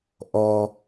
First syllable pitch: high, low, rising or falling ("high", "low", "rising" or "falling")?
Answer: low